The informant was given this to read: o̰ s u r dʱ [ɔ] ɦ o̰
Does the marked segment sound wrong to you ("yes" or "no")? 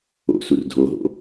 yes